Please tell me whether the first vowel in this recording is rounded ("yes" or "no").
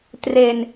no